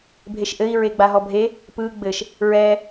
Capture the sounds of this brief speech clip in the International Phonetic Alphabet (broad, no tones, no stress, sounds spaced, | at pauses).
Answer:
bʱ e ʃ ʔ ɘ i̯ ɹ e ɡ͡b a ɦ ɔ bʱ e | p ɯ ɡ͡b ɘ ʃ | ɹ ɛ